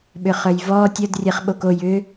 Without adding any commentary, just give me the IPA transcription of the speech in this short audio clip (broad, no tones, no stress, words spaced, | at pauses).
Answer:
ɓʏχœjvɔː tʲəd rʲɛχɓoko jʏ